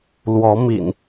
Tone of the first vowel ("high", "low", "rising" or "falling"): rising